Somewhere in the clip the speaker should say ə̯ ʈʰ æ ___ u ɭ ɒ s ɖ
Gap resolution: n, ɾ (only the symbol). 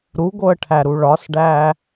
ɾ